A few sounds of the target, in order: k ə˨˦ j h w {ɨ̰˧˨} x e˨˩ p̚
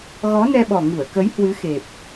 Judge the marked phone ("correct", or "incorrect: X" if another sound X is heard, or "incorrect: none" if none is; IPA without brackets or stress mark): incorrect: ɨ˨˦